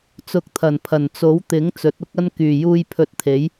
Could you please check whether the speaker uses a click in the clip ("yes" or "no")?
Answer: no